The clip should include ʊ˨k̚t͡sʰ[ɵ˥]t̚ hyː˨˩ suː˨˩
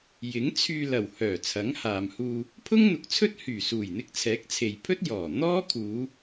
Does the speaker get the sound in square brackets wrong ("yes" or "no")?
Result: no